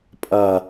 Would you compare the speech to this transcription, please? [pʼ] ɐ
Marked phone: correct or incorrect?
correct